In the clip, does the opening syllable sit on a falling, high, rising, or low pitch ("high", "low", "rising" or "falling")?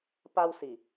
high